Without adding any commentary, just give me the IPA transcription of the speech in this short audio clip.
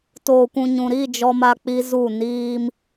toː˨kʷũ˨ɲũ˨ɾi˦˨ d͡ʒɔ˦ma˦k͡pi˦zu˦˨ niː˦m

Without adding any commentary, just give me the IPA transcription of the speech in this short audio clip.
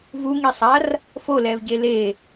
vuŋisˤar | folɛvɟe le

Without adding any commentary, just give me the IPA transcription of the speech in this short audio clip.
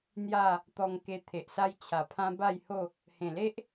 n̪ja˥˧ | t̪ɔ˧ŋ ke˧ t̪ʰe˨ʔsa˦j t͡ɕʰa˨˩pʰã˦ ba˥˧jho˥˧ | hẽ˨˩le˦ʔ

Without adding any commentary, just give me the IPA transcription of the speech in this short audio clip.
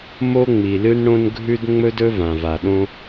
mo˥ŋ͡mi˩lɨ˥nɽõ˥n ɡʱʉ˥d ŋ͡mɵ˥dɵ˥vã˩v a˩ɗõ˥

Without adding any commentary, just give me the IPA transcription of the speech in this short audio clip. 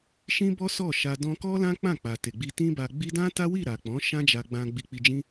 ʃĩ˦bɔ˦ sɔ˦˨ʃa˧ dɔ̃˧kɔ˦lã˦ k͡pã˦˨k͡pa˨te˨ ɡ͡bi˧tĩ˦ba˧ɡ͡bi˦ dã˦ta˦wi˦˨ ɾa˨k͡pɔ̃˨˦ ʃã˦d͡ʒa˧ɡ͡bã˧ ɡ͡bi˧k͡pi˧ d͡ʒĩ˦

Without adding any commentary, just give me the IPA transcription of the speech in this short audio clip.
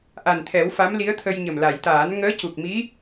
ʔa˨˩nt̪ʰɛ˨˩˦w fa˧˥mli˧˥ə̯t̪ʰə˧jɲə˨˩m la˨˩˨jt̪aː˨˩˦n ŋəː˧˥cu˨˩k̚mi˧˥

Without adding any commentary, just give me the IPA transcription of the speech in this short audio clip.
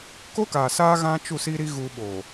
ko˦kaː˨saː˦ ɣã˦t͡ʃu˦˨ siː˦ɾi˦ ɣu˦ ɓoː˨

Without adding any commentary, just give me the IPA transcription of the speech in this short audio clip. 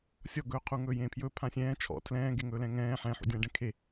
sʲɔɡɵːqʰu ŋɵːjẽːpʰjɵː pʰãsʲɛ̃ː t͡ʃʰɔ̰ tʰlɛ̃ː ɡeŋɵːlɛ̃ŋɛ̃ː ħɛ̃ħṵdʲãːɖɛ̃ kʰe

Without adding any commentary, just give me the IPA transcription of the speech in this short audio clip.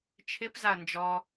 t͡ʃʰɪpzaɐ̯ nd͡ʒɔ

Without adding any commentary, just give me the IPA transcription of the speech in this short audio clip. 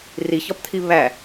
riçɒpt̪ʰi βæ

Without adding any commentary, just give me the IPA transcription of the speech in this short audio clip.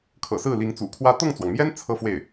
kʰɤ̰˨˩ sɹ̩˥˩li˧˥ŋt͡sṵ˨˩kʰwä˥ t̪ɤ˥˩ŋt͡swɑ˩ŋmjɛ˥n t͡sʰɤ˥fwe˥˩ɪ̯

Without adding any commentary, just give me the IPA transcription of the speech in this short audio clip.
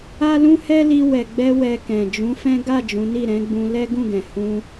a˦lũ˦ hɛ˦li˧ wɛ˨ɡ͡bɛ˧ wɛ˧kɛ̃˨ d͡ʒũ˨˦fɛ̃˦ ɡa˦˨ d͡ʒũ˨˦ni˦˨ ɾɛ̃˨˦ɡ͡bũ˧lɛ˦ ɡũ˦˨ɡɛ̃˨ hũ˧

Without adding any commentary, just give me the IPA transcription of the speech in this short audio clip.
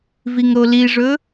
viŋɾoliʐɵ

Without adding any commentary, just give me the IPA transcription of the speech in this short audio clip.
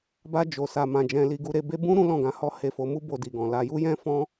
ba˧d͡ʒo˨sa˨ mã˧d͡ʒɛ̃˧li˧ɡu˦ ɾe˧be˦ bũ˦ ɾũ˦lɔ̃˦˨ɡã˧hɔ˦ he˧fo˧mu˦ bo˧di˨ɡɔ̃˨la˧ ju˦jɛ̃˦fɔ̃˦

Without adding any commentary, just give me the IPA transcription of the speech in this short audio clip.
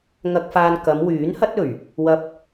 ŋɐ˧k̚faː˧n kɐ˨˧mwyː˨˥nhɐ˥t̚ɵ˨˩ɥ | wɐ˧p̚

